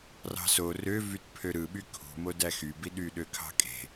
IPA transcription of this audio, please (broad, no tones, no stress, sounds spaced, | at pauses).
r ɑ̤ s o r ø v y t pʰ ø ɾ ɯ ɓ y kʰ ṳ m o d æ x y b i ɗ y ɗ ø kʰ ɑ̤ kʼ e̤